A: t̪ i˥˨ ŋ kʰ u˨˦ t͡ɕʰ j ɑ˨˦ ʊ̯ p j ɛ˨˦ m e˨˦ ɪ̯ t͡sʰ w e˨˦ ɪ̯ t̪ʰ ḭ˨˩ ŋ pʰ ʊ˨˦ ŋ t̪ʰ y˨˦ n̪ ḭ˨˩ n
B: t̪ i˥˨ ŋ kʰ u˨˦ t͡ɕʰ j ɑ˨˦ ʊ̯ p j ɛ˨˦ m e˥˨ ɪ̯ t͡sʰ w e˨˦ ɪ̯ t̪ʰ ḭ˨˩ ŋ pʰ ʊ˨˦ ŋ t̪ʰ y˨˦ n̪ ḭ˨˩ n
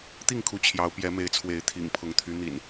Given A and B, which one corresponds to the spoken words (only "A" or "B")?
A